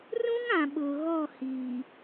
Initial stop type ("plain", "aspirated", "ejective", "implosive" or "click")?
implosive